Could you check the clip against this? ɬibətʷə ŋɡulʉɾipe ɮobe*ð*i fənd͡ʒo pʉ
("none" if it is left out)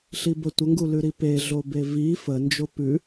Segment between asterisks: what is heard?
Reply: v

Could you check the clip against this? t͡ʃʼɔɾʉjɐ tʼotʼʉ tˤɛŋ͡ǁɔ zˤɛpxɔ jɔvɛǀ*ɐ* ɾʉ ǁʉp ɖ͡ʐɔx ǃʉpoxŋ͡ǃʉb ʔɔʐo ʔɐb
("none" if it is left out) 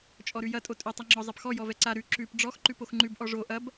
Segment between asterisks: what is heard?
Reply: a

